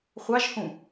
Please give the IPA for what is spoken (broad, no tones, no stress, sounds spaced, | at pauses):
χʷ ɑ ʒ h ũ